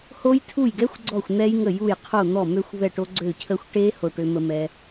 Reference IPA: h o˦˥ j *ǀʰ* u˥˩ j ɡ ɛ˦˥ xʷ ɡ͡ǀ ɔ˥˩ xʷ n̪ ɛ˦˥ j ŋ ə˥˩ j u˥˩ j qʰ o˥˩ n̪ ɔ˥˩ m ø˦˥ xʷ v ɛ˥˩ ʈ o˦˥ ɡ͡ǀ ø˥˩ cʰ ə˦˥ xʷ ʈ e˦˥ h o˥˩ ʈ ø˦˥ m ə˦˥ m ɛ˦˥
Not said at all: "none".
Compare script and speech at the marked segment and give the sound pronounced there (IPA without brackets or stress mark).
tʰ